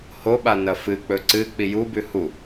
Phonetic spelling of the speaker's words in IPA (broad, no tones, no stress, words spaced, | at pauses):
hoɓa nɐfɨk͡pɵ ǀɨ k͡pijubʉ hu